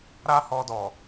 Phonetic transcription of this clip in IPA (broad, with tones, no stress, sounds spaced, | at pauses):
ɾ a˦ h ɔ˧ d ɔ˨